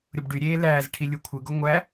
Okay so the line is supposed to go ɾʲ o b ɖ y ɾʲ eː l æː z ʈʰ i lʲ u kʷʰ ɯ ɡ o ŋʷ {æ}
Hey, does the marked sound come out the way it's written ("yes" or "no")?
yes